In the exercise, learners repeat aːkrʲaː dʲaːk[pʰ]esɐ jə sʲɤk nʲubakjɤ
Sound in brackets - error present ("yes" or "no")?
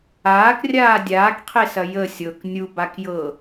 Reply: yes